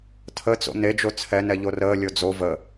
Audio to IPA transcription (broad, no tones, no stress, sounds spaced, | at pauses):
tʰ ə t͡s o̰ n e d͡ʒ o t͡sʰ ɛ n ɛ ʎ o r əː lʲ o d͡z o v ə